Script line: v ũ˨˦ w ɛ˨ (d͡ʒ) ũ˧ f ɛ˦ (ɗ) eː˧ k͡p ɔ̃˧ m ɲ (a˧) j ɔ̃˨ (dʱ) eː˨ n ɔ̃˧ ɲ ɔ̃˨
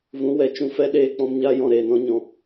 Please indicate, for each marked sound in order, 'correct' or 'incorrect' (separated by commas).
incorrect, correct, correct, incorrect